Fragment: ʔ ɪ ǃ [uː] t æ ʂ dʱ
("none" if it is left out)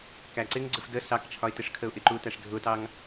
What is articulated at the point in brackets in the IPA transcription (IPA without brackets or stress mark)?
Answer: uː